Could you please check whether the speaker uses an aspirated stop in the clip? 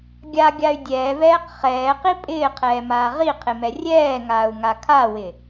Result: yes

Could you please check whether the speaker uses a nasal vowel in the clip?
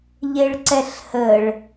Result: no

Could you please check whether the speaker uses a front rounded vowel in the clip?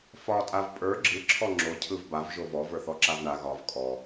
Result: no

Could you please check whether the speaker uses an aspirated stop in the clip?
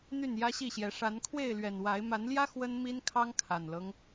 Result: yes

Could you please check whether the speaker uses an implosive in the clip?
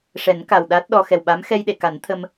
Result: yes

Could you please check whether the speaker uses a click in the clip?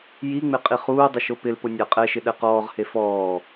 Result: no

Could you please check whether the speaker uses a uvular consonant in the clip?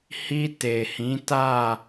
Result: no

